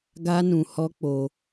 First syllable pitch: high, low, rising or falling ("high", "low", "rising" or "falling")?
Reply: high